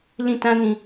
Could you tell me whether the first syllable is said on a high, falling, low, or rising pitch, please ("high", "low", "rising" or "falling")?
falling